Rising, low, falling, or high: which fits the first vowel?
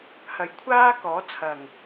low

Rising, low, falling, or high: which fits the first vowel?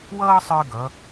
high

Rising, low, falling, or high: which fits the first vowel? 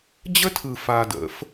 high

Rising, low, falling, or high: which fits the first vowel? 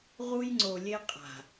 high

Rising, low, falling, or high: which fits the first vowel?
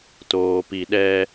low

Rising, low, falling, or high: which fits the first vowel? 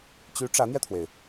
rising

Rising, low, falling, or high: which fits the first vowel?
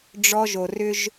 high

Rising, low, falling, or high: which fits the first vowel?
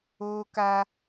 high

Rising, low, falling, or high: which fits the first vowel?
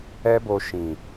high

